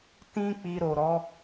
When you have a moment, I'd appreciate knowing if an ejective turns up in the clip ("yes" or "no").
no